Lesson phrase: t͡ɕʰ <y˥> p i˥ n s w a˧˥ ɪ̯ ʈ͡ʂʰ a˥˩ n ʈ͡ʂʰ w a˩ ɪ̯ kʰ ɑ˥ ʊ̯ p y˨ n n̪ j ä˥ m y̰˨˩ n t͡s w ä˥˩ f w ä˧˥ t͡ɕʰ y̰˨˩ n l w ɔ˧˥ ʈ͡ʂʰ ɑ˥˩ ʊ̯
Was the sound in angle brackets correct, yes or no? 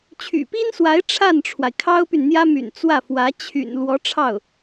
no